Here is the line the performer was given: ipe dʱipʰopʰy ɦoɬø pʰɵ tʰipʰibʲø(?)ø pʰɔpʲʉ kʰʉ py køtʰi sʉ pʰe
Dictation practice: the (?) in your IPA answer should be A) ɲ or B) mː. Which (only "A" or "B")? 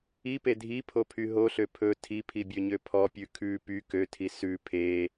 A